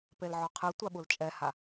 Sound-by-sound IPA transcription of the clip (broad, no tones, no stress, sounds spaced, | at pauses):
p e l ʕ ɔ qʰ ɯ tʷ a ɓ u l t͡ʃʼ ɛ h a